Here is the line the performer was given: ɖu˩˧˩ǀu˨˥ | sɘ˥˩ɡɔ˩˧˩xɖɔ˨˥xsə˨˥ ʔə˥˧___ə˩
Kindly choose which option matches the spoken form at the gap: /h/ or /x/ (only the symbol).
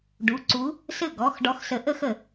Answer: x